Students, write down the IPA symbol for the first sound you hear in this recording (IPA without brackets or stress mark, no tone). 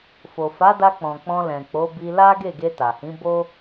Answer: f